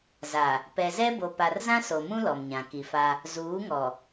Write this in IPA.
z a˨ | p ɛ˨ z ɛ˦ b o˨ p a˨ r z ã˦ s o˨ m ũ˦ l ɔ˨ m ɲ ã˨ k i˨ f a˦ | z uː˨˦ ŋ ɔ˨

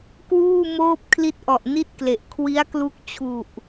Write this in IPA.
k w uː˥˩ m oː˥˩ p̚ kʰ l i˦˥ t̚ ʔ ɔ˨˩ ʔ n i˥˩ t̚ k l e˨˩ ʔ kʰ w i˦˥ a̯ k l u˦˥ k̚ t͡ɕʰ u˨˩ ʔ

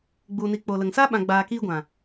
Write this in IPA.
ɡ͡b u˨ n i˨ k͡p o˨ l ə˨ ŋ s a˦ ɓ ã˨ ɡ͡b aː˨ k iː˧ ɡʷ ã˨

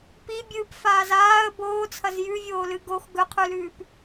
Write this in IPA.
p i bʲ ɨː p f aː z aː ə̯ b oː t͡sʰ ɐ z j ʉ vʲ oː l ɨ ɡ o x ɡ ɵ qʰ ʉ l ʉː p

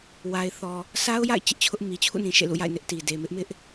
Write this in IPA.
w a˨ ɪ̯ θ ɔ˨ | sʰ a˦ ʊ̯ j a̰˦˨ ɪ̯ t͡ɕ ɪ˦ ʔ t͡ɕʰ ʊ˦ ʔ m i˨ t͡ɕʰ ṵ˦˨ n ĩ˨ ʃ ḛ˦˨ l ṵ˦˨ j a̰˦˨ ɪ̯ n ɪ˦ ʔ t i˨ d e˨ m ɪ˦ ʔ m ɪ˦ ʔ

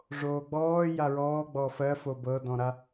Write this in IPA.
ʐ oː ɡ͡b ɔː j a ɹ ɔː ɡ͡b ɔː f ɜ f o b ɤ d ɔ̃ ɾ a

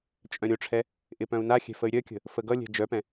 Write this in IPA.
t͡ʃʼ œ̃ ɾʲ o ʈ͡ʂʰ ɛ | ʔ ɪ p œ̃ u̯ n a xʲ ɛ̤ f ə y̯ ɾʲ œ kʲ ə̤ | f ə ɡ ʌ lʲ ɛ̤ d͡ʒ œ p ɛ̃

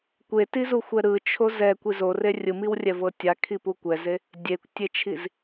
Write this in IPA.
kʷ e t i z u xʷ ɛ ɾ ɯ t͡ʃʰ o z ɛ kʷ i z o r e rʲ ɯ m i w rʲ ɛ v ɤ tʲ a kʰ i p u kʷ ɛ z e | dʲ e kʷ tʲ e t͡ʃʰ i z

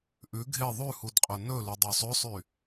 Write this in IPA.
ʔ ʉ ɡʱ e ðˤ ʉ h u d qʼ ɵ n ɵ l y dˤ o sˤ ø sˤ y

